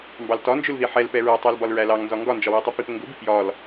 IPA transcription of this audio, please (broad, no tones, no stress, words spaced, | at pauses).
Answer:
mbɑltɒnd͡ʒʊlði ħɛl pɛɹɛtˤæl bɒlɹælɑŋnzɒ ŋɡɒnd͡ʒɒwitˤi pipəŋɡʊbi pjɒl